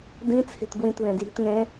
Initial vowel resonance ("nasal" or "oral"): nasal